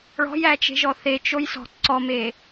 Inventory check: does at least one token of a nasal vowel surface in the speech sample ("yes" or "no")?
no